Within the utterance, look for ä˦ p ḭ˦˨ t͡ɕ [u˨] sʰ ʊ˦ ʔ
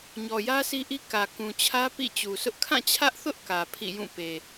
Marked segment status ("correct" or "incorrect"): correct